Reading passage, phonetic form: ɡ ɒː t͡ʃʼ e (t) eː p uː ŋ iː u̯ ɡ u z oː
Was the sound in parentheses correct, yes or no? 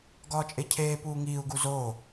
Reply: no